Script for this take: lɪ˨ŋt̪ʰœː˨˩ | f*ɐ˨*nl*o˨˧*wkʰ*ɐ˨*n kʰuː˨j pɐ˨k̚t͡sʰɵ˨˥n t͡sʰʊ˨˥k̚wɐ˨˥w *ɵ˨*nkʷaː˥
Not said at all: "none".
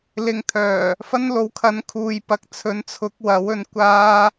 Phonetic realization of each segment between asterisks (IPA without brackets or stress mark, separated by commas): ɐ˥, o˨˥, ɐ˨˥, ɵ˨˧